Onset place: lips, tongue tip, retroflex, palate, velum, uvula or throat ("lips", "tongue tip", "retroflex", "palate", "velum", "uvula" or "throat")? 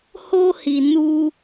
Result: throat